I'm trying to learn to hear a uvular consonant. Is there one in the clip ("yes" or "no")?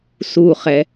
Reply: yes